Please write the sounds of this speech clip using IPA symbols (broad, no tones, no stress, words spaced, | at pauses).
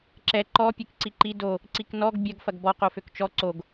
ǁɛ ǃɔ pʲekǀiǃi do | ǀiknɔɡ bʲɐɡ fɐɡbɔ qoføkt͡ʃɔ ǀoɡ